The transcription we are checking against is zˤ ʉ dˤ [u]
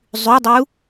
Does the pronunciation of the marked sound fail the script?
no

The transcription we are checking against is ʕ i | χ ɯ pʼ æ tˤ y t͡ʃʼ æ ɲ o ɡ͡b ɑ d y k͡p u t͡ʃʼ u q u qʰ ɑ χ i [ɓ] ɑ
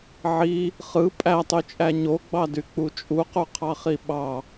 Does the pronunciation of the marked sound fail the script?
no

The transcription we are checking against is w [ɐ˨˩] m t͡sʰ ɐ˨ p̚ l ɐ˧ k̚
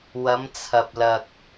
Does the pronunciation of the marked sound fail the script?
yes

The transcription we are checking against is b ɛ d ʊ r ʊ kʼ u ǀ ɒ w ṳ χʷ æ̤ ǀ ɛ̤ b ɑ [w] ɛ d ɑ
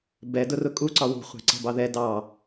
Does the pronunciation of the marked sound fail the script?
yes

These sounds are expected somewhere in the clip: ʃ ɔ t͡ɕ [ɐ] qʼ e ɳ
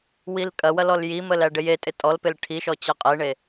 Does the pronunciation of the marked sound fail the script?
yes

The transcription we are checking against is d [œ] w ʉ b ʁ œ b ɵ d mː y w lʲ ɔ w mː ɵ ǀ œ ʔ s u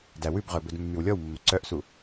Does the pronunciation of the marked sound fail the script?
yes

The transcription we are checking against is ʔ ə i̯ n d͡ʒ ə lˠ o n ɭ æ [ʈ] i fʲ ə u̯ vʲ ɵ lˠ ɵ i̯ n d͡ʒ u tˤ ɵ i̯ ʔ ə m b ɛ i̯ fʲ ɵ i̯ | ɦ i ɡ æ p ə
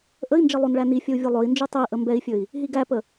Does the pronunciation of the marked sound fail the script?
yes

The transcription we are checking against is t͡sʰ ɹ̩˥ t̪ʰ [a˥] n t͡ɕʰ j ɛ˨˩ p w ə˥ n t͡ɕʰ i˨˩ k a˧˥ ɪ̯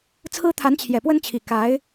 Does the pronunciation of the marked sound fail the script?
yes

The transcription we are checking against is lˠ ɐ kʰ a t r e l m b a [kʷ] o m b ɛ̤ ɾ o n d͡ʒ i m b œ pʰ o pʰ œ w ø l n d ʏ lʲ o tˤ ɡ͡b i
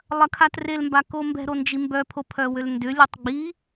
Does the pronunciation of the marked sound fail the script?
yes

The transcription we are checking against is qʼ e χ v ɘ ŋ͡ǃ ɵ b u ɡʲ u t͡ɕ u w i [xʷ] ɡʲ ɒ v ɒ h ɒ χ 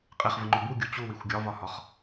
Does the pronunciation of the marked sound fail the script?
no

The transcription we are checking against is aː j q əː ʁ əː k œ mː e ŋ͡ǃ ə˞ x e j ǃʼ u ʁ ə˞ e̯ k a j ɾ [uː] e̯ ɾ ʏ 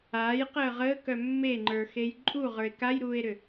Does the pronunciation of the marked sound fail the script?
no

